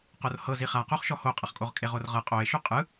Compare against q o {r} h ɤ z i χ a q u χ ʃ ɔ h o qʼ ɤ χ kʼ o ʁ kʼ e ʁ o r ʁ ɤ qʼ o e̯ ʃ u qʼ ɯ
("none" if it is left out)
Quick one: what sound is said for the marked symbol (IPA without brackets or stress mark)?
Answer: r